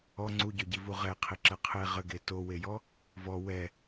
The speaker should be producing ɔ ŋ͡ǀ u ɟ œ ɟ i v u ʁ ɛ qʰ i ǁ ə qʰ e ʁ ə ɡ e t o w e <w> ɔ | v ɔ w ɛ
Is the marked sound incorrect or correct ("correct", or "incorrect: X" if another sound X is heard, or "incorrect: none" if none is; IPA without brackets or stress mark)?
incorrect: j